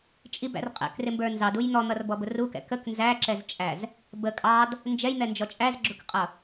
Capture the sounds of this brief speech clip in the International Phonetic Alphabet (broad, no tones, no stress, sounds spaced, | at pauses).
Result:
t͡ʃʼ i b æ̰ r qʼ ɛ̰ k r ɪ m b ə˞ n z ɑ d u j n̪ ɔ n̪ ʌ r b ɔ b ʊ r u k ɛ̰ k ə k n z æ ǁ ɛ z t͡ʃʼ æ z | b ə kʼ ɑ d | n d͡ʒ ɛ j n̪ ɛ n d͡ʒ ɔ t͡ʃʼ æ z ɡ͡ǁ ʊ k qʼ ʌ